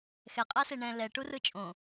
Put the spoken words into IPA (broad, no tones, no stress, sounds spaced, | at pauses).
x ɛ qʼ a s e ɳ ɛ̃ l ɛ ʈ u r ɯ t͡ʃʼ õ